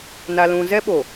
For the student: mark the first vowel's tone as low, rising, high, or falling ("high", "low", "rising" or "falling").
high